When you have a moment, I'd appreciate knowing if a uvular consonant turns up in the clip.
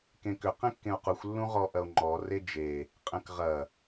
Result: yes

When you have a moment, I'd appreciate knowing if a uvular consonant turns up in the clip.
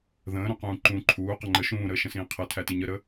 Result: yes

